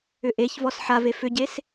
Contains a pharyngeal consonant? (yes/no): yes